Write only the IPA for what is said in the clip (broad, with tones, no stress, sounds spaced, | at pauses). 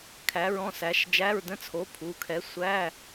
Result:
kʰ æ˨˥ ɹ ɔ̃˧˥˧ s æ˨˥ ʃ d͡ʒ æ˧˥˧ ɹ d ə̃˧˥˧ t͡sʰ o˨˥ pʰ u˩˧˩ kʰ ɛ˨˥ sʷ æ˧˥˧